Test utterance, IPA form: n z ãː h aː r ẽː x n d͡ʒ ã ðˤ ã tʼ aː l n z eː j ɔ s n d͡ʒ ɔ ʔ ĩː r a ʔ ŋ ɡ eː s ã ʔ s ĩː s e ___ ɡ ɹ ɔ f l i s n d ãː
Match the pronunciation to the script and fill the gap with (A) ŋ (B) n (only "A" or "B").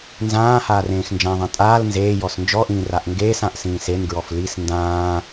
B